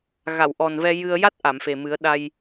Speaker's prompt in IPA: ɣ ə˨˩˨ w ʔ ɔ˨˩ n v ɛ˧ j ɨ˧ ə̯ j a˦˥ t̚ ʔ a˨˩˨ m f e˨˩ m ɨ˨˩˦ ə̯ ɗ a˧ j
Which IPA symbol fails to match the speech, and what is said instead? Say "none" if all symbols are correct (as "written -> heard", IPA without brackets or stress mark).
ə˨˩˨ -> a˨˩˨